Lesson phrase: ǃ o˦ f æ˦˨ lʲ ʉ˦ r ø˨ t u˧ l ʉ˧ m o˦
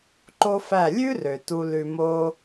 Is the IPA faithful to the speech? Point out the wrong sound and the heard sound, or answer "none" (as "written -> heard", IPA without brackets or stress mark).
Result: none